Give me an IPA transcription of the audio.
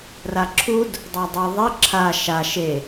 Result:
r a ǁʰ u d | dˤ a dˤ ɯ ðˤ i ǁʰ a ʃ a ʃ e

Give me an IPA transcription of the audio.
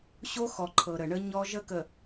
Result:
ɕ o˦ x ɔ˨ ǃʰ ɤ˨ ɾ ə˨ ɳ ə˦ ɲ ɔ˦ ʒ ə˦ k ə˨

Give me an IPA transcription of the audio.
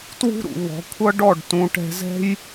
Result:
t w ṳ˦ ɾ ṵ˨ β ɔ̤˨˦ kʷʰ ʌ˦ ɖ ɔ˦˨ ɖ t ũ˧ ʈ ɛ̤˧ z ɛ̤˦ j

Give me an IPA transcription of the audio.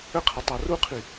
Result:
ə qʰ ə tˤ a r u qʰ i

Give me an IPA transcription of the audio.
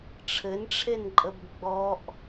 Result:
ʈ͡ʂʰ ɘ n ʈ͡ʂʰ e n ǃʼ ə b ɡ͡b ɔ ʔ

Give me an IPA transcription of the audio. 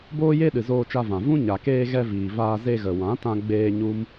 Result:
b oː˦ j e˦ ɗ ɨ˨ z oː˧ t͡ʃ a˧ v ã˨ v ũ˦ ɲ a˨ k eː˧ ɣ ɛ˧ v iː˨ v aː˧ z e˧ ɣ ə˨ w ã˨˦ t ã˧ ɡ͡b eː˧ ɲ u˦ m

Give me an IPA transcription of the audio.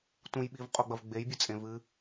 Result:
t ũ j ɓ i v qʼ o ɡ͡b ɐ v ɡ͡b e j bʲ ɨ t͡sʼ ẽ v ɨ

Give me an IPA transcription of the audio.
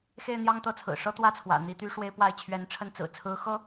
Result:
x e˥˧ ɪ̯ n̪ j ɑ˥˧ ŋ t̪ ɤ˥˩ t͡sʰ ɹ̩˨˩ ʂ ɤ˥ t̪ w ä˥˩ t͡sʰ w ä̰˨˩ n̪ i˧˥ t̪ y˥ ʂ w e˥ ɪ̯ p w a˥˩ ɪ̯ t͡ɕʰ ɥ ɛ˧˥ n ʈ͡ʂʰ ə˥˩ n t͡s ɹ̩˨˩ t͡sʰ ɹ̩˧˥ x ɤ˥

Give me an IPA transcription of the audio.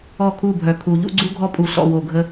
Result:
ɔ˦˨ kʰ u˦˨ bʱ œ˨ kʰ u˨ ʎ ṵ˦ ɡ͡ǀ u˦ ɡʱ ɔ˦ pʼ u˨ ɬ ɔ̰˨ w o˨ ɡʱ ə˦

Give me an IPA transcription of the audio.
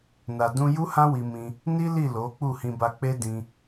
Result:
n a˨ d ũ˧ j u˦ h ã˦ w i˧ m ĩ˧ | n i˦ l i˦˨ l o˨˦ k͡p u˦˨ h ĩ˧ b a˧ k͡p e˦ d ĩ˦

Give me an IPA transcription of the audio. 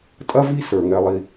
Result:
tʼ ɐ˥ v i˥ s ə˞˩ ŋ ɛ˨ lˠ i˨

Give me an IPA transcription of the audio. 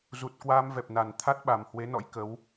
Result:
z u˨˩ t̚ k w aː˧ m v ɛ˨˩ p̚ n a˨˩ n t̪ʰ a˦˥ t̚ ɓ a˨˩ m h w e˨˦ n ɔ̰˧˥ j k ə˨˦ w

